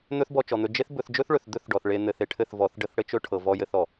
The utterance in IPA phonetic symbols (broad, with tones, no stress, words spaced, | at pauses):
n̪ɵ˦θbɔ˧t͡ʃɔ˨n̪ɵ˧ d͡ʒe˦θ bɵ˧θd͡ʒɵ˦θɭɵ˨θ d̪ɵ˦θɖɔ˨θ ɭe˧ n̪ɘ˨˦θe˨ʈʰɘ˦˨θ vɔ˨˦θɖə˦θ ɽɘ˦t͡ʃɵ˦ ʈʰɤ˨vɔ˧ jɘ˦θɔ˨